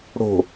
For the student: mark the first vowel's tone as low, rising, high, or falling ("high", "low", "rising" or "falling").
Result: low